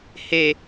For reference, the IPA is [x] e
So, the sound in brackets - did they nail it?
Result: no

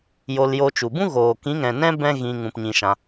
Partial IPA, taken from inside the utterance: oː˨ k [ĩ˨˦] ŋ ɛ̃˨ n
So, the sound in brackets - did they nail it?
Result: yes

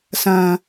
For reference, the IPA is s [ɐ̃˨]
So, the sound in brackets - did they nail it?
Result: yes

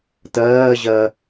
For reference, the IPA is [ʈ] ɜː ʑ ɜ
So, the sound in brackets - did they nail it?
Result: no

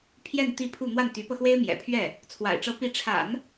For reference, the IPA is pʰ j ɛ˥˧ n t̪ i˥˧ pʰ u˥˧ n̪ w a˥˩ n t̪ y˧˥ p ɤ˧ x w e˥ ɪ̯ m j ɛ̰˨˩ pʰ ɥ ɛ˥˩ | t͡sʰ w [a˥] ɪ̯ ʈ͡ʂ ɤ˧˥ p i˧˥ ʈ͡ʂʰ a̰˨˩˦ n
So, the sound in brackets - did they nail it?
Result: no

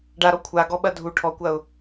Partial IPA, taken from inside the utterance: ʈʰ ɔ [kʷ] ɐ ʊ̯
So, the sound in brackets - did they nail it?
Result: yes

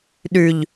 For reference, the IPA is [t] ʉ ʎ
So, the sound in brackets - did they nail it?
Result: no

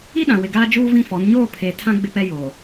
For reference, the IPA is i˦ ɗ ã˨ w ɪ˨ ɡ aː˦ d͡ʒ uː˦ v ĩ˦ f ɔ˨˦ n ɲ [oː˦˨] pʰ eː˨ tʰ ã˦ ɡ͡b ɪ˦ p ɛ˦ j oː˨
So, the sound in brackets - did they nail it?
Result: yes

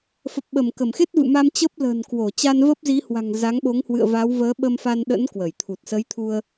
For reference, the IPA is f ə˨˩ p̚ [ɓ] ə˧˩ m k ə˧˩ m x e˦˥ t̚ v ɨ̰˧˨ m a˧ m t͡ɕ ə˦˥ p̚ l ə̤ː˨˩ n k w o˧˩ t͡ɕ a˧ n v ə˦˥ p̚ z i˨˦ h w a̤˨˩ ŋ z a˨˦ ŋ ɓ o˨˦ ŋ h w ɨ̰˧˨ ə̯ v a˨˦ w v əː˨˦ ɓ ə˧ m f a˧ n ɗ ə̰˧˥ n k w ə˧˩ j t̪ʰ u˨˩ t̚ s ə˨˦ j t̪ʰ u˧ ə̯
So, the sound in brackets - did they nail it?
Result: yes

